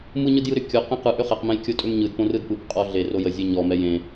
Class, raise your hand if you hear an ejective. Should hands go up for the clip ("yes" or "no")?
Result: yes